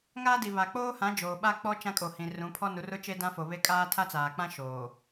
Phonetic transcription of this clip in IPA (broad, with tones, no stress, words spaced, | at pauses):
ŋaː˦di˨ βa˨k͡poː˦hã˨˦ d͡ʒoː˨ɓa˦k͡pɔ˦ t͡ʃã˦kʼo˨hĩ˨ rũ˨˦pʰɔ˦nu˨˦rʊ˦ t͡ʃe˦dã˦fo˨βe˦ kʼaː˦tʰa˦t͡saː˨k͡pã˦ ʃoː˨